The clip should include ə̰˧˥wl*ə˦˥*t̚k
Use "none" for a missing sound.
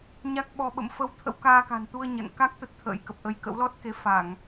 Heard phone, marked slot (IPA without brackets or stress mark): ɔ˦˥